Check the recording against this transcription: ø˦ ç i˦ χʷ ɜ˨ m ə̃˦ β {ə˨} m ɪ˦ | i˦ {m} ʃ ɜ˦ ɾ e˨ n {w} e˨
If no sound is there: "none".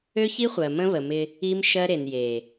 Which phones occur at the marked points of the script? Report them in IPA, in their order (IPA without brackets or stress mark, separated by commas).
ə˨, m, j